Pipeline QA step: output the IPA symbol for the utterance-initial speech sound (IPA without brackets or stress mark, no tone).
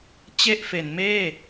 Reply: t͡ɕ